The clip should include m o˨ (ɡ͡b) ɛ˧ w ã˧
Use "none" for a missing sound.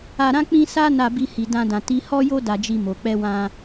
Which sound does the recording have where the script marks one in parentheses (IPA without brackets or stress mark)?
k͡p